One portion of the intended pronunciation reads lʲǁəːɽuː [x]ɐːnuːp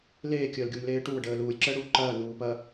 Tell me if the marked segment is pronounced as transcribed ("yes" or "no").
no